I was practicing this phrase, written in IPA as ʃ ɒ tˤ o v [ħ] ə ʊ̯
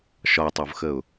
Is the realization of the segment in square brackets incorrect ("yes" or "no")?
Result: yes